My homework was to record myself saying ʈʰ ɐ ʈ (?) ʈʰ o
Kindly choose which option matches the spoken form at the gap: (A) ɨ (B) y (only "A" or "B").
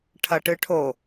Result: A